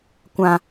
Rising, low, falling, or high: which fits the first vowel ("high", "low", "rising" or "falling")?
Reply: low